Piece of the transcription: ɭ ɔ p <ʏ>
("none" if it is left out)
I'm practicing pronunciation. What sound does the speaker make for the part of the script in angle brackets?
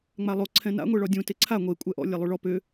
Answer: ʏ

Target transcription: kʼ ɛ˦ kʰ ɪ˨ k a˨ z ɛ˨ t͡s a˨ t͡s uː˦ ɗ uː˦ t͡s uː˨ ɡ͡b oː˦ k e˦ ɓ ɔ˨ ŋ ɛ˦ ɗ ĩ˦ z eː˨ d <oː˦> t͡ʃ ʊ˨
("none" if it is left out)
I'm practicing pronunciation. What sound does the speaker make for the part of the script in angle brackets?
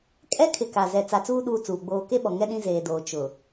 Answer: oː˨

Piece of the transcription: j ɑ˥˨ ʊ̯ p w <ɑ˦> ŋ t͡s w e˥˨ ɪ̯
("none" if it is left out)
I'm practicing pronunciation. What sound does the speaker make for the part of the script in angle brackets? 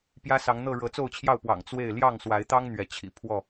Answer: ɑ̰˨˩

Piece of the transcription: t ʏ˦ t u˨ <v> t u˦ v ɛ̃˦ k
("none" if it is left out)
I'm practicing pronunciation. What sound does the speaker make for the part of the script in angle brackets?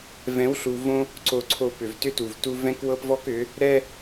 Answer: v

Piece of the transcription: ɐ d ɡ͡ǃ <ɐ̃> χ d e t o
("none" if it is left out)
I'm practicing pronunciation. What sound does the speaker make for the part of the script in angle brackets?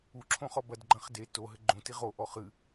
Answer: ɐ̃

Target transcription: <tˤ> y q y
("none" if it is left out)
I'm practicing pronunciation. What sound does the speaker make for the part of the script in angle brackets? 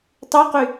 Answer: tˤ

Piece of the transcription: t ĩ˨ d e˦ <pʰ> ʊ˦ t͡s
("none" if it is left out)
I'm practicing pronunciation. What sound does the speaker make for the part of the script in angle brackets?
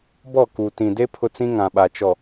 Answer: pʰ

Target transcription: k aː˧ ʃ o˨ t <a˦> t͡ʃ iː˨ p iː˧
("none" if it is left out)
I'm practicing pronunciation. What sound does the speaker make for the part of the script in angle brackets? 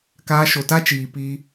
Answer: a˦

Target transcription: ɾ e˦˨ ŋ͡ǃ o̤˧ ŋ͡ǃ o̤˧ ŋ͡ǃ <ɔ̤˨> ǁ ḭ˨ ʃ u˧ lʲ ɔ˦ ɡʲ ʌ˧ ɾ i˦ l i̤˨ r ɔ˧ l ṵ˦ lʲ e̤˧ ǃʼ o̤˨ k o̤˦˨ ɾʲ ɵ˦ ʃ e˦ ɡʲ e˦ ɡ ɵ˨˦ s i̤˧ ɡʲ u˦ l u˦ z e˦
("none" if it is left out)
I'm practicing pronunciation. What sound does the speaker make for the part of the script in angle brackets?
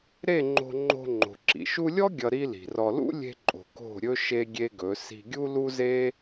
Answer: o̤˨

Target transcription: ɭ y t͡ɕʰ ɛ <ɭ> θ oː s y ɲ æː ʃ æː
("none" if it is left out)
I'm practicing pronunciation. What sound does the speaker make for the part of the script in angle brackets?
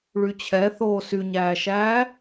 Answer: none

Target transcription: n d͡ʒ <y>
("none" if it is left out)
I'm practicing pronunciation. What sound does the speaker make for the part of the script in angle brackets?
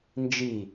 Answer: i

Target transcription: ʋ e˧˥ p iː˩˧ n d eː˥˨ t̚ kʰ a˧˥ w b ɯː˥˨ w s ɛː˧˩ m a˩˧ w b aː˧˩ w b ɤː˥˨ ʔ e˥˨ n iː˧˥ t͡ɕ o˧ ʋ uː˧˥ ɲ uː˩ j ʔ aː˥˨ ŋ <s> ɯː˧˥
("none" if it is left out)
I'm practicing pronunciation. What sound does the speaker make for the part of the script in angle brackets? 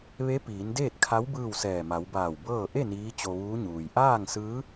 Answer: s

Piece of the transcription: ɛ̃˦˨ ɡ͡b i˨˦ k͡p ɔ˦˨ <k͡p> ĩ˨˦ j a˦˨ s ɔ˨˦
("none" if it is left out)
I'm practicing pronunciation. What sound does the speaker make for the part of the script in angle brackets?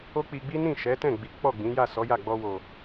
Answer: ɡ͡b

